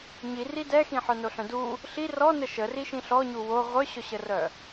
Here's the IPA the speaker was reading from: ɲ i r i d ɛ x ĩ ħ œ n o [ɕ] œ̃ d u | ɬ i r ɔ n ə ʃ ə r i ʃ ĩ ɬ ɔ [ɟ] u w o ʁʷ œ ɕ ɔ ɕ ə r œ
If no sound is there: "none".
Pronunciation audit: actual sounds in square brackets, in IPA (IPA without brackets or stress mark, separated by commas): ɬ, ɲ